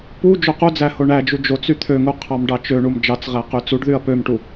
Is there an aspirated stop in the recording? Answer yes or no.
yes